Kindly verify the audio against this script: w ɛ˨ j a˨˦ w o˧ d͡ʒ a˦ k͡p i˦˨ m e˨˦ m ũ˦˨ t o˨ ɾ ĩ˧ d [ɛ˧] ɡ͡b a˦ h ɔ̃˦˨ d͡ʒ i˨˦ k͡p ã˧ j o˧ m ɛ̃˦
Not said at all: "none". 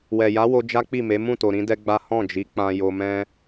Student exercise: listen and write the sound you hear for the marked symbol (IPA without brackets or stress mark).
ɛ˦